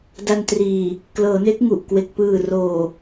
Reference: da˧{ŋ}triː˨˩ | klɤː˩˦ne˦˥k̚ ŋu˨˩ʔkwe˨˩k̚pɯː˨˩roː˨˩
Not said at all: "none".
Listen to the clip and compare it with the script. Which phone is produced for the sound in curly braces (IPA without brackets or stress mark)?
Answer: n